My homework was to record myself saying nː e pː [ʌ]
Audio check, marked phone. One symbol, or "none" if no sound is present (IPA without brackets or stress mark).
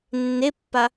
a